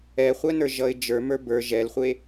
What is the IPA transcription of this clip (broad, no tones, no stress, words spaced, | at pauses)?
ɛχʷɛnə˞ʒʌɪ̯ d͡ʒə˞mə˞ bə˞ ʒɛlχʷe